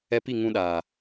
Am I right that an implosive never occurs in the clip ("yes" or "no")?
no